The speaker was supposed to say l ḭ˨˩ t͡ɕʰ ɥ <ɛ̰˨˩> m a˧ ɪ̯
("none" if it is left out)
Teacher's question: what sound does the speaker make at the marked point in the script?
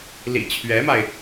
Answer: ɛ˧˥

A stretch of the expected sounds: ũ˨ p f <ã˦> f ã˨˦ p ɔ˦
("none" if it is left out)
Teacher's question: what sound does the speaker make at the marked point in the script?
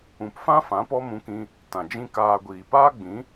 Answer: ã˦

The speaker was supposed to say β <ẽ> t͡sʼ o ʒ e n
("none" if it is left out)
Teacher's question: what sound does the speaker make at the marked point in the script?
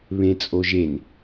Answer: ẽ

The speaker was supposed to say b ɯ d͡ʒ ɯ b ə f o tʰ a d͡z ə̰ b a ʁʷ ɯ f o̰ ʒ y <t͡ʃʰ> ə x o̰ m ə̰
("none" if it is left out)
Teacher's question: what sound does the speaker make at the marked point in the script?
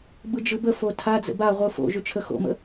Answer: t͡ʃʰ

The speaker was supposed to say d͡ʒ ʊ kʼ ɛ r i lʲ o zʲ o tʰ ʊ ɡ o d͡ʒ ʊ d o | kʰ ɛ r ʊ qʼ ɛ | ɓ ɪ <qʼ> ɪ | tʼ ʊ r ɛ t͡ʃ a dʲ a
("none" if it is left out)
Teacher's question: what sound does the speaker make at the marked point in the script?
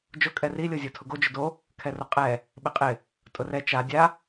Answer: qʼ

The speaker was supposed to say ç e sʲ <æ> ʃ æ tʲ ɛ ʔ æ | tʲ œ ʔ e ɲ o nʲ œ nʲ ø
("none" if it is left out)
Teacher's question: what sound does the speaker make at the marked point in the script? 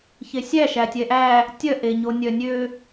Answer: æ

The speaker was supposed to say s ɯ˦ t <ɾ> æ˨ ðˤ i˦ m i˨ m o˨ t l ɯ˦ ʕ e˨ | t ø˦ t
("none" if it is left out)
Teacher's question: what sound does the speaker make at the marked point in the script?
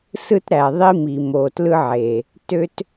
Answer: ɾ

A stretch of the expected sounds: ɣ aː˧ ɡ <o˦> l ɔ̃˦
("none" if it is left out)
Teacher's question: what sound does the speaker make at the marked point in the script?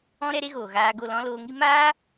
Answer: o˦˨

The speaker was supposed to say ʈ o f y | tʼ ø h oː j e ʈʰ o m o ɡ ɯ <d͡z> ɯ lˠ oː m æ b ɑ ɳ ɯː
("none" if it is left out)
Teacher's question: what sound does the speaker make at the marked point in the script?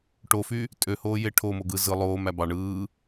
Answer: z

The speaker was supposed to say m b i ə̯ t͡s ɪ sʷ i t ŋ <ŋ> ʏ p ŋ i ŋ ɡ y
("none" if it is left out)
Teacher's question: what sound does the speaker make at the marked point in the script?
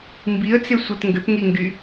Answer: ɡ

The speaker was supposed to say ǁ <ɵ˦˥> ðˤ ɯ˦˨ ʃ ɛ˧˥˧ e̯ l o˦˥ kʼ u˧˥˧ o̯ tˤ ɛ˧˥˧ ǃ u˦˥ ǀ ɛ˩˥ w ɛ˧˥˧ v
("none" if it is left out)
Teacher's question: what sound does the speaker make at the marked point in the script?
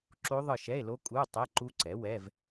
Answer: o˦˥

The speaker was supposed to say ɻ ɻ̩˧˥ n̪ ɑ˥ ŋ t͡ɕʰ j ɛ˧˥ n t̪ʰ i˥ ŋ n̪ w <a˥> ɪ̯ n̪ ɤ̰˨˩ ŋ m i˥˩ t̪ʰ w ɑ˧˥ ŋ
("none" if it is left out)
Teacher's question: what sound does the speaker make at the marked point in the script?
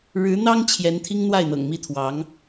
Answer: a˥˩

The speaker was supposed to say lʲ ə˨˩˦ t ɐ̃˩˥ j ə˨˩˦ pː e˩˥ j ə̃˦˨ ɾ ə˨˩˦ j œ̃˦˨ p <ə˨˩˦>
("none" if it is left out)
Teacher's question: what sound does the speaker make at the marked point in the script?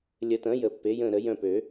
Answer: ø˨˩˦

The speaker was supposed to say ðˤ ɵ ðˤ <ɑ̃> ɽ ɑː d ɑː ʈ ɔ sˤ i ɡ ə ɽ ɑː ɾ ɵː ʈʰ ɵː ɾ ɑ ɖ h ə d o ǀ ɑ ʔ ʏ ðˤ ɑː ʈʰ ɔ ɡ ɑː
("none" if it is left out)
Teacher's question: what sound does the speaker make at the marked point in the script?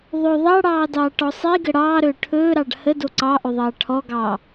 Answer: ɑ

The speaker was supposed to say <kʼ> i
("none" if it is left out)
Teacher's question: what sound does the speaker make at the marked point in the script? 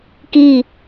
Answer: k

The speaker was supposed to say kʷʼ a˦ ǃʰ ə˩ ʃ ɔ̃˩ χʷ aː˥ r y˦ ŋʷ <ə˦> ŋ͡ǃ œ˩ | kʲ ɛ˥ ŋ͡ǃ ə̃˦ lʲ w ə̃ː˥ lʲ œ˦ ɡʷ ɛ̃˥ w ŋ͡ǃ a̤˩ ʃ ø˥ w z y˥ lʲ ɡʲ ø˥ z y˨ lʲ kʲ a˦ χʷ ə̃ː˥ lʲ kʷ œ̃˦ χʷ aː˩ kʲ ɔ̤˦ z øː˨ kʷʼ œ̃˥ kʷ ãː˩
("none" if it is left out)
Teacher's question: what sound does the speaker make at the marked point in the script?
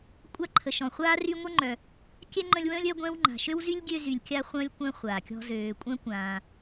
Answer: ə˥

